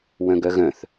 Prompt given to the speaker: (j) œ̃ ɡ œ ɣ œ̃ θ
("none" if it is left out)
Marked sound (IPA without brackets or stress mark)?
w